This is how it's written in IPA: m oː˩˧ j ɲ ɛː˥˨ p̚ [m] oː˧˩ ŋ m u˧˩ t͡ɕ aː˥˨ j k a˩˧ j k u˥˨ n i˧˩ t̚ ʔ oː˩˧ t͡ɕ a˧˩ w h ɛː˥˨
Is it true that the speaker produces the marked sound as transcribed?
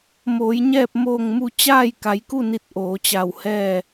yes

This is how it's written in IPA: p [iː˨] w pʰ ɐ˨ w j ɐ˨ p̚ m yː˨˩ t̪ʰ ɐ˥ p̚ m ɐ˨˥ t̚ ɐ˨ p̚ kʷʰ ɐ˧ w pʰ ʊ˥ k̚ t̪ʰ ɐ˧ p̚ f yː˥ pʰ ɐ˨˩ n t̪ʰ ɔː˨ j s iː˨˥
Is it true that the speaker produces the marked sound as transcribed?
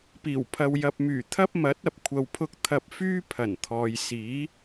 no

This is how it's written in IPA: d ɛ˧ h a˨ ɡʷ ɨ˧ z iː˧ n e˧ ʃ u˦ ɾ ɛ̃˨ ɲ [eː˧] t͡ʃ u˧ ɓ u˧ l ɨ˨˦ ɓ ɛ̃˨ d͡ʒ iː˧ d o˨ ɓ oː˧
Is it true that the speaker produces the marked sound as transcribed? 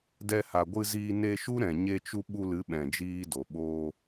no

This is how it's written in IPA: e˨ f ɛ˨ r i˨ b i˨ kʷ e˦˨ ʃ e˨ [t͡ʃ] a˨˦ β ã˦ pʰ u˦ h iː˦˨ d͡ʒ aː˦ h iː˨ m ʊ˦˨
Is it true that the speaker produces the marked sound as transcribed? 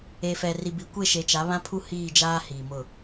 yes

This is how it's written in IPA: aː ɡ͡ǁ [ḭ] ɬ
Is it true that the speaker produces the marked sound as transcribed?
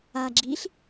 no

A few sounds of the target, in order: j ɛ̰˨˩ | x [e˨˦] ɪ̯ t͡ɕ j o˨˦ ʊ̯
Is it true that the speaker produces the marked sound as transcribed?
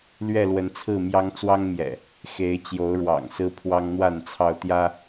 yes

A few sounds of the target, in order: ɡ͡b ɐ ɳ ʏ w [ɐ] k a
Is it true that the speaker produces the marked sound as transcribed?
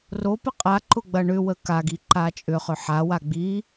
no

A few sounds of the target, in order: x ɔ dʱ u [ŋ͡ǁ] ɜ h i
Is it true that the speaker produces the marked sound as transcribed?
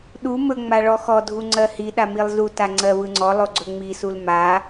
no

